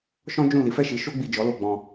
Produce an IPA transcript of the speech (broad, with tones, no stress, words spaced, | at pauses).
ʃɔ̃˦d͡ʒũ˦˨li˨˦ fɛ˦˨ʃi˨˦ ʃo˦ ɡ͡bi˦˨ d͡ʒɔ˨˦lo˦˨ ɡ͡bɔ̃˧